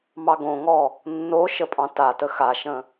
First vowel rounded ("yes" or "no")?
no